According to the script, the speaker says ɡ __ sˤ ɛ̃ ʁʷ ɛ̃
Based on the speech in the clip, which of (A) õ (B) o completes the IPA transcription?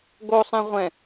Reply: B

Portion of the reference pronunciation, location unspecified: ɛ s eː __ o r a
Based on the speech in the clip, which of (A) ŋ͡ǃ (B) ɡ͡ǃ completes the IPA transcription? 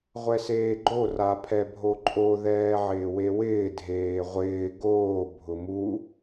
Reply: B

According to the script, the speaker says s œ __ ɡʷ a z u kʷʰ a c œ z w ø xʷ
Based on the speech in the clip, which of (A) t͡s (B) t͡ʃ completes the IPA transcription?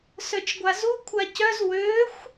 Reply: B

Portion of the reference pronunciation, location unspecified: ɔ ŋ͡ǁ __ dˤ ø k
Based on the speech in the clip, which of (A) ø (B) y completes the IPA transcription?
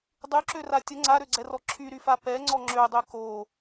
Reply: A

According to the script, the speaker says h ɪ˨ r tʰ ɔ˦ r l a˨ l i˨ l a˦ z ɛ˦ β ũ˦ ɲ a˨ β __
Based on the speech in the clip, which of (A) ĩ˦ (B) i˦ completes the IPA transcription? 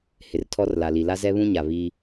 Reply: B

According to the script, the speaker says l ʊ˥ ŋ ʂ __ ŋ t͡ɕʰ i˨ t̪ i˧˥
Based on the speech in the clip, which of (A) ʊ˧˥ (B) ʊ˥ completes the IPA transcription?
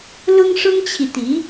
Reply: B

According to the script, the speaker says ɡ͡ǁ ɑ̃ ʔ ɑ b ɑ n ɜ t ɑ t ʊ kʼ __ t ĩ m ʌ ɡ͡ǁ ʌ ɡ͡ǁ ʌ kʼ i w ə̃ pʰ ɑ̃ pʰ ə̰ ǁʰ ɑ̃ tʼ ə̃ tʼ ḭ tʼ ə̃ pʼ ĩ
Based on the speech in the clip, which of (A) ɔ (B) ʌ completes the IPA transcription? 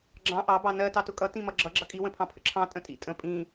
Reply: B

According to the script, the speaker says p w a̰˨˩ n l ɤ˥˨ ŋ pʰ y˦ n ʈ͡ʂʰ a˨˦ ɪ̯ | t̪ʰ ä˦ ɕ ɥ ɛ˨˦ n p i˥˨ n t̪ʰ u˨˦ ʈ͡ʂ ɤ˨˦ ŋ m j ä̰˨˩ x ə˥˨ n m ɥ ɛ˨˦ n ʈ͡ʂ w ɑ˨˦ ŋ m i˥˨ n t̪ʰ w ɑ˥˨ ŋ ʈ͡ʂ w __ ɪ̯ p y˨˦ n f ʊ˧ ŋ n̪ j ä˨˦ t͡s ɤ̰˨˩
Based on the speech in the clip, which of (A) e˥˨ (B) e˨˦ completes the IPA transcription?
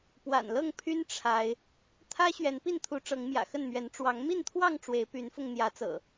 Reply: B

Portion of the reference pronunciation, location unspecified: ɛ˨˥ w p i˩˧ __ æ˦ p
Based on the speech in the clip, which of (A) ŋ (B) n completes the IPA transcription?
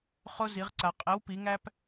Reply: A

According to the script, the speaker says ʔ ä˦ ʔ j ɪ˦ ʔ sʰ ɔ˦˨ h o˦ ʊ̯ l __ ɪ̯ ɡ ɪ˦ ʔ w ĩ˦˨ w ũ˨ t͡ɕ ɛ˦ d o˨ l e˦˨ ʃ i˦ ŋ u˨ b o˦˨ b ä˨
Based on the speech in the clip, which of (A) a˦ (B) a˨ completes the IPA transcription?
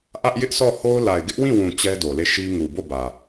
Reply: B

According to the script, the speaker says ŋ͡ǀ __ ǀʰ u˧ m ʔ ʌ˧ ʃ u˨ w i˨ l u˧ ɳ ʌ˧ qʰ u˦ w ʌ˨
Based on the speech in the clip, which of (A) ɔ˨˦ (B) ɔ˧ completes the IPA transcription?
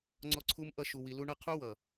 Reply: B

